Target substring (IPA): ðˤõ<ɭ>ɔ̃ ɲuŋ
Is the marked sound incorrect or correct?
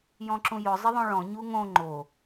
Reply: correct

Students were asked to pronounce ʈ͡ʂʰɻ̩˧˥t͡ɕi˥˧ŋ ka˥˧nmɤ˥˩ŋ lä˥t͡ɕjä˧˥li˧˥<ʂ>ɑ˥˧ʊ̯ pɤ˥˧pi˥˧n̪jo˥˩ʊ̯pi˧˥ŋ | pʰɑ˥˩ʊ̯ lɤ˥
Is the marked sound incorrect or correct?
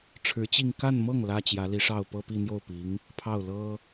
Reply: correct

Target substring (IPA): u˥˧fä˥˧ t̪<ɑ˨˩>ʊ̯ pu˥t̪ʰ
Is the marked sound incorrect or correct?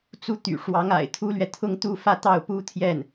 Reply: incorrect: ɑ˥˩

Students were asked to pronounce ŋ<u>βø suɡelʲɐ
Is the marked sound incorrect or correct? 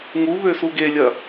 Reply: correct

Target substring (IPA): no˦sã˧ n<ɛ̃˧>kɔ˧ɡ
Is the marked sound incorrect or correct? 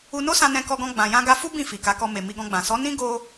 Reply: correct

